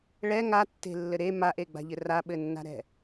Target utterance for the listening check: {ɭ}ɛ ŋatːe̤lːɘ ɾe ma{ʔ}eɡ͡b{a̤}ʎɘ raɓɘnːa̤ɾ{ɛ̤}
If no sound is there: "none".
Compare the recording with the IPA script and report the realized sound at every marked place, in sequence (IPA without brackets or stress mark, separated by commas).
ɭ, ʔ, a̤, ɛ̤